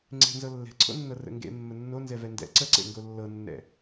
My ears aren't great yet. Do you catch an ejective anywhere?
no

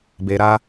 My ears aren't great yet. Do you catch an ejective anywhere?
no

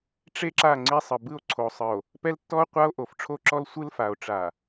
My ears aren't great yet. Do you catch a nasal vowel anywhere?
no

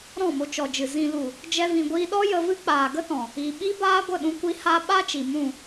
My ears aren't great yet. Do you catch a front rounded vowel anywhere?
no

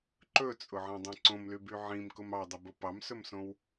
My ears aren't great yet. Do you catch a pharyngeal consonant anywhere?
yes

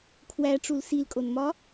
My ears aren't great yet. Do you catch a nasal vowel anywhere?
no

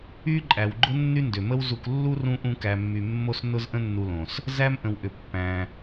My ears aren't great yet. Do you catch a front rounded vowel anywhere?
yes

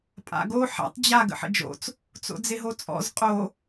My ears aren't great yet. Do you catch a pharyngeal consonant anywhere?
yes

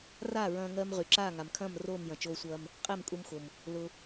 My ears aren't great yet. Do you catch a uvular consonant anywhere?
yes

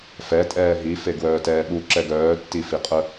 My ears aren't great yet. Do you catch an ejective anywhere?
yes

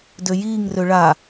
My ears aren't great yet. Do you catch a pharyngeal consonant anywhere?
no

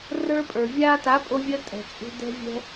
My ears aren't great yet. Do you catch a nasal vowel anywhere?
no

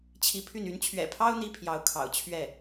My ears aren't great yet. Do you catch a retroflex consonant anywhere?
no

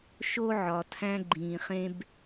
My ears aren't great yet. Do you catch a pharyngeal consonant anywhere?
yes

